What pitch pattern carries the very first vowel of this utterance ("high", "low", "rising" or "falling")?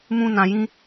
high